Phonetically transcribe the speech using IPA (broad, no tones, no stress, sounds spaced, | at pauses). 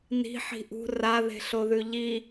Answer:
n i̤ ħ i̤ ʔ ṳ r a ð e̤ ɬ o ð ʉ ʎ i